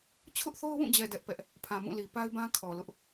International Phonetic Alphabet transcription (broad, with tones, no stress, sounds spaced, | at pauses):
t͡ɕʰ ʊ˦ ʔ θ o˦ ʊ̯ w ũ˦˨ d͡ʑ ɛ˨ d ɛ˦ ʔ p ɛ˦ ʔ | pʰ ã˨ m ũ˦˨ l i˨ p a˦ ɪ̯ b ã˦ kʰ ɔ˨ l ʊ˦ ʔ